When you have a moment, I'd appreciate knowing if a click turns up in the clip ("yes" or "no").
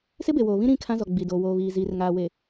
no